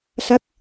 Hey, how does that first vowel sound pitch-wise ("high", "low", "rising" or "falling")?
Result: rising